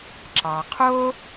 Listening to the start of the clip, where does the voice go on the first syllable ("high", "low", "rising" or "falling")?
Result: low